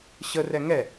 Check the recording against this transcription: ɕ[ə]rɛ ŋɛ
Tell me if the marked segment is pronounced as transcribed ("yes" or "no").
yes